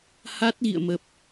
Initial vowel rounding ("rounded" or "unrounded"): unrounded